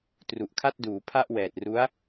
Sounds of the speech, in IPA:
t r u˨˩ ʔ kʰ a˥˩ t̚ d uː˩˦ pʰ a˥˩ ʔ w ɛː˨˩ t̚ r u˦˥ a̯

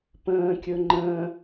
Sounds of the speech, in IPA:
p ə̃ː kʲ ɵ ŋ͡ǃ ə̃ː

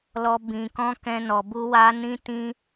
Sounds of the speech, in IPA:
l ɔ˦ b ĩ˧ k ɔ̃˦ k ɛ̃˦ n ɔ˧ b u˦ w a˦ n ĩ˦ t ĩ˦

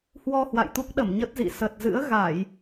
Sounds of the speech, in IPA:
h w ɔ˧ h w a̰˧˨ j t̪ u˦˥ k̚ ɗ ə˧˩ m ɲ ə˦˥ t̚ z ḭ˧˨ s ə˨˩ t̚ z ɨ̰˧˥ ə̯ ɣ a˧˩˨ j

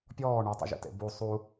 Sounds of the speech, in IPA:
pʲ ɔː ɳ u tˤ ə̰ ʒ ḛ t ḛ b u sˤ u

